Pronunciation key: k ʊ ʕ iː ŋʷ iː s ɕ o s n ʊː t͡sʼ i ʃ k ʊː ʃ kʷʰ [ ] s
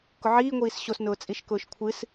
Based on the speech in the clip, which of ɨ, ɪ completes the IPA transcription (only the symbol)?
ɨ